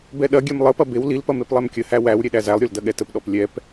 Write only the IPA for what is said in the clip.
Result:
bɛɗɐɡʲɛm lˠəpɐ bew lilpɐ meplˠɛmkʲəhæ wæw ɾʲeɗæzælˠɾʲol dɐɠɛtəpɗɔp lʲɛp

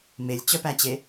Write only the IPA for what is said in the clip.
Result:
melʲt͡ɕœpæt͡ɕe

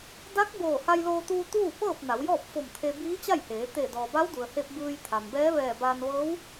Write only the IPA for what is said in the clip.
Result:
da˧˥k̚boː˧˩ ha˧jloː˧t̪uː˧ t̪uː˥˨pɤː˥˨p̚ na˩˧wjɔː˥˨p̚ fo˧˩mt̪ʰe˧ biː˧˥t͡ɕa˥˨jheː˩˧ t̪e˧˩ dɔː˩ba˧˥wdu˩ə̯he˧p̚ bɯː˧jt̪ʰa˩mbɛː˧˥ ʋɛː˧˩baː˧n ʋɤː˧˥w

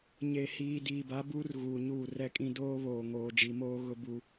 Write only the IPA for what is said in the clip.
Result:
ɲe˨hiː˨ diː˨ba˨˦buː˦r ɣuː˨ɲuː˦˨rɛ˦kʼĩ˦ doː˦βoː˨ ŋoː˨ d͡ʒi˨moː˦ɣʊ˦ bu˦

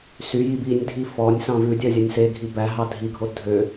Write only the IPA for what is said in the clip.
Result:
syjib inʲdʱi fɔnʲ sɑ̃vʉdʲœ zʲɛnʲseɡʱi bæɦɑ dʱiɡʱo dʱø

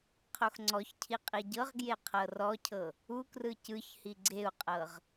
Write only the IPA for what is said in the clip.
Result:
qʰoxŋ͡ǀɔçcʰi qʼiɟɤʁɡje qʰɤrɔcʰɤ | ukrɯ cɯçhi ɡ͡ǀeu̯qʼɤʁ

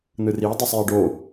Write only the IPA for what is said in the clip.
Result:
n̪ɯri dˤʌsˤjɛɖo

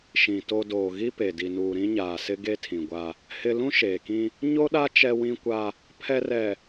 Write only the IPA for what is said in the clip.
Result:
ʃĩ˨ to˦ doː˨ɣi˦ pe˨ di˨nuː˨ ɾĩ˦ɲaː˨sɪ˦ɡe˦ tʰĩ˨ ɡʷa˦ | hɪ˦ lũ˦ʃeː˨kĩ˦ | ɲo˦ɗa˦ t͡ʃɛ˦wĩ˦kʷa˦ | pʰɛ˦ rɛ˨

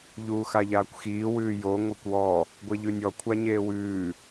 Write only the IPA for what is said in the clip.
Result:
ʎuːxaʎaːkʷxiː wʉːjo ŋʷekʷwɔ | ɡʷeʎʉnʲɔ kʷʰaɲeːwʉː

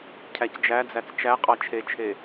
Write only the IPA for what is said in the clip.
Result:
cʰæcd͡ʒæd͡zæt͡s t͡ʃæ qʼɑt͡ʃʰet͡ʃʰe

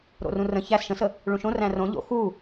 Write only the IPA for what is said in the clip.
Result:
ɾo̰rũrə̃ çæs ʃə̃sə | ɭũʃõ ræ̃rõ ʎo̰ xu

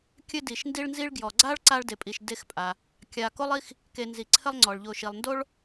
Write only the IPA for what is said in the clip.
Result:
kʲɘ˦di˩ʃndi˦ɭnzi˦ɭ ɡjɔ˩ɡ͡ǀa˥ɭ ǀa˦ɭde˨pʼi˨ʃ de˥xpʼa˨ | kʲa˨ko˥lˠi˥x | ke˨ nzi˩ǀʰɘ˦lˠ ŋ͡ǀɔ˩ɭʎo˨ ʃi˩lˠndo˥ɭ

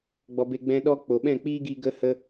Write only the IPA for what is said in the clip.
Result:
ɡ͡bɔ˧be˧ ɡ͡bɛ̃˧ ɗɔ˦ k͡po˨ɓɛ̃˦˨k͡piː˦ɡi˧ ɡə˧ hə˧

